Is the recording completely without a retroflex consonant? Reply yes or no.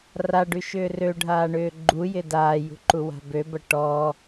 no